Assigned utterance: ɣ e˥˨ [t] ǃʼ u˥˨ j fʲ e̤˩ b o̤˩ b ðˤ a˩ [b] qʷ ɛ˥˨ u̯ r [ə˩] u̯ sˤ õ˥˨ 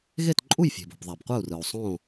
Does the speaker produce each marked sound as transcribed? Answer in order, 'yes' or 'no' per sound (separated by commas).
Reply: yes, yes, no